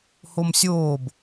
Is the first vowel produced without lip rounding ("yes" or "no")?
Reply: no